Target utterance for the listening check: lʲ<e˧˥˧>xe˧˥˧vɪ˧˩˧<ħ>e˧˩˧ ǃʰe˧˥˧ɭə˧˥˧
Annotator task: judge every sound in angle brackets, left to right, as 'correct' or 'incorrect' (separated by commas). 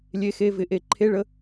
correct, incorrect